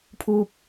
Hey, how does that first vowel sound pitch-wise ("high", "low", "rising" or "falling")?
high